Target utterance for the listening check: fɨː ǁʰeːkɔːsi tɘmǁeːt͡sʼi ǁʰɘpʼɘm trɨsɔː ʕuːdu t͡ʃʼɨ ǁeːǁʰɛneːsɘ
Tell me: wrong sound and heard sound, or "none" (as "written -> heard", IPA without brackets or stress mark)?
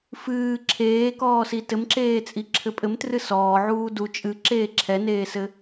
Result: none